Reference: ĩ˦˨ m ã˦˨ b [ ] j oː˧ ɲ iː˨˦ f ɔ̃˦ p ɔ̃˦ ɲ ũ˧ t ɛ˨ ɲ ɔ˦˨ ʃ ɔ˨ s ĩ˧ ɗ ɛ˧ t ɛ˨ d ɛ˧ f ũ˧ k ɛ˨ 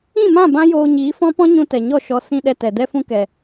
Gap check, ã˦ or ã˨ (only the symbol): ã˦